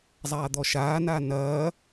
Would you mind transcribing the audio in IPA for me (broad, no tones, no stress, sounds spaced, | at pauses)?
zˤ aː d̪ ɔ ʃ aː n aː n ɐː